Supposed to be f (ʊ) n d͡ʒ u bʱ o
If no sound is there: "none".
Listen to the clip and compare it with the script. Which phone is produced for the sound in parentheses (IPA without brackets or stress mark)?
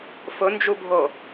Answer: ʊ